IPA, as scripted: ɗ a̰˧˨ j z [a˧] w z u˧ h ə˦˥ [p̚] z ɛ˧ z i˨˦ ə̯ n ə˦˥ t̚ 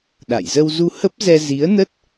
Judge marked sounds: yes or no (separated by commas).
no, yes